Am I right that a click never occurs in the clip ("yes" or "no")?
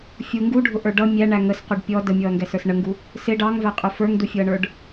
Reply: yes